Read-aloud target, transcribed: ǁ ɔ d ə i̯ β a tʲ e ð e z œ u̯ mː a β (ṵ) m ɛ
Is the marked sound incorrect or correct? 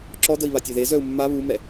incorrect: u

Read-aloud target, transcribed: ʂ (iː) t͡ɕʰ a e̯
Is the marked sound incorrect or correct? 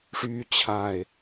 incorrect: yː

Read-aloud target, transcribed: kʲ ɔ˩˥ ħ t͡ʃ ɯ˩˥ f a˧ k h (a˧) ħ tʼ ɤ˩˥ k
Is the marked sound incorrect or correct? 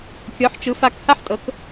incorrect: a˥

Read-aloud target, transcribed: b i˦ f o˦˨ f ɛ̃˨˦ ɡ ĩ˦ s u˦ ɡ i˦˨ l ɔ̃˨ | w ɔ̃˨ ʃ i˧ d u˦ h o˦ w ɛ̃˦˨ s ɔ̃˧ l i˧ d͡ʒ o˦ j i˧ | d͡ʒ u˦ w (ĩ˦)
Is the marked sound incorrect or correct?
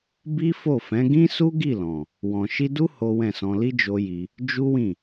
incorrect: ĩ˦˨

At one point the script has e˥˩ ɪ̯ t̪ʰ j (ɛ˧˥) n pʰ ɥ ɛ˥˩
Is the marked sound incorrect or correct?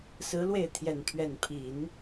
incorrect: ɛ˨˩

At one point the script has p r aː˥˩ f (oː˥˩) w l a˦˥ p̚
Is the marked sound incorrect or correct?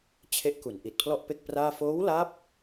incorrect: oː˦˥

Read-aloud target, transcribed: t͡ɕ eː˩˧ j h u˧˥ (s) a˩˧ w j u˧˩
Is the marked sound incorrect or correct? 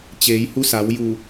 correct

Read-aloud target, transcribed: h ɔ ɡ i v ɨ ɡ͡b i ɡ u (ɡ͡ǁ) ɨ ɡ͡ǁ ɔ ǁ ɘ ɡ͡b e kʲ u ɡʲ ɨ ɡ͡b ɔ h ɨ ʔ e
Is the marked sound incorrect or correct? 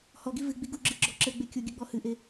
correct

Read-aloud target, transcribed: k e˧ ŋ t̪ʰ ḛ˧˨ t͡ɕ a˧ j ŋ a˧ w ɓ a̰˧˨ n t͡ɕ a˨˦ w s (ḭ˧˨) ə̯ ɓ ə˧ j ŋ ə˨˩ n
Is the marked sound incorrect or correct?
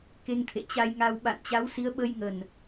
incorrect: i˨˦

